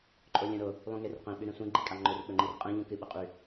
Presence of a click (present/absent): present